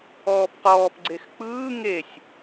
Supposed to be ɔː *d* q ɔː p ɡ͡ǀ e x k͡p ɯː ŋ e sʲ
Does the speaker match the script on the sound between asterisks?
no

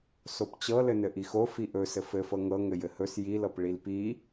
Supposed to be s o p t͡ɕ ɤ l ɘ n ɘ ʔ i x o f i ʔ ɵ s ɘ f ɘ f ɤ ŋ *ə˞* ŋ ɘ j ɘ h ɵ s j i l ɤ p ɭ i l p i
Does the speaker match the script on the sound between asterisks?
no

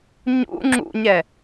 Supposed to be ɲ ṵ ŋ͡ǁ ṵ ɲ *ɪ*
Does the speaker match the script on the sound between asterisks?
no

